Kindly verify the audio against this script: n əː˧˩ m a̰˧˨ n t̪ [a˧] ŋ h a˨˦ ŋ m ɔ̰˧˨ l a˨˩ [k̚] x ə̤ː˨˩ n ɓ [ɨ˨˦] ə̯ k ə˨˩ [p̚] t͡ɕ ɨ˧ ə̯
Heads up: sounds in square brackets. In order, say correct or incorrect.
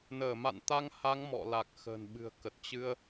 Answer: correct, correct, incorrect: ɨ̤˨˩, incorrect: t̚

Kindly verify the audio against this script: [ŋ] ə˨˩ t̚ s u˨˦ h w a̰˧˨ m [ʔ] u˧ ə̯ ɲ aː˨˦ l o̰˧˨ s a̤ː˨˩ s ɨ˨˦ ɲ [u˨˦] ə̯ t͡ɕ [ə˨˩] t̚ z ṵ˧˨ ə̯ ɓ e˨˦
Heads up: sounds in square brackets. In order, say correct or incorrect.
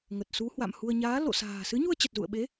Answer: correct, incorrect: h, incorrect: u˧, correct

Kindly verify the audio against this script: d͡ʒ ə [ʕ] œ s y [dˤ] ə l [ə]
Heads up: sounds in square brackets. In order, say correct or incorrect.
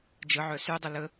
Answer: correct, correct, correct

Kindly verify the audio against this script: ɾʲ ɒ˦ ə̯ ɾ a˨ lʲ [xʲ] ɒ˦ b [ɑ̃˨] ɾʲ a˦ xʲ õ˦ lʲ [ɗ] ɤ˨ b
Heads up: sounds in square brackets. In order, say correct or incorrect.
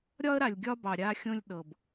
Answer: incorrect: ɡʲ, incorrect: ɑ˨, correct

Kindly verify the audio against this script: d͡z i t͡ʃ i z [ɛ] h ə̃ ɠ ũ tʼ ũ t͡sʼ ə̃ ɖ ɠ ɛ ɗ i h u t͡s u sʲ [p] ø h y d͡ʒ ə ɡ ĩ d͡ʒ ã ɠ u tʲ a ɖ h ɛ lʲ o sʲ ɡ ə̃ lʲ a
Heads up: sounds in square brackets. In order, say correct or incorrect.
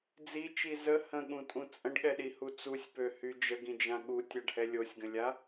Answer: incorrect: ə, correct

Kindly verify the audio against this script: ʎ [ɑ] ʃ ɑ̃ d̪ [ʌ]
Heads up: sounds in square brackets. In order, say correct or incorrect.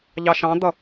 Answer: correct, correct

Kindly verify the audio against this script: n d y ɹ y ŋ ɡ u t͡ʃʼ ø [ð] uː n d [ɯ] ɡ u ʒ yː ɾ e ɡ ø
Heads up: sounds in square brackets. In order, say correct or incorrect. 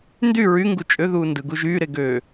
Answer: correct, correct

